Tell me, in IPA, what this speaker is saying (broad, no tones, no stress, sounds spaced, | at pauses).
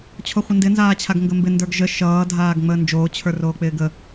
t͡ɕʰ o χʷ ə n d ɪ n z aː t͡ɕʰ a ɡ ŋ ɡ ə m b ɪ n d ə˞ ɡ ʒ ə ʃ ʌː dʱ aː ɡ ŋ͡m əː n d͡ʒ oː t͡ɕʰ ə˞ r oː k͡p ɪː ɡ ə